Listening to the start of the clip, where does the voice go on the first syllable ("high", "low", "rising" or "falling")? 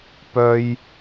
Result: high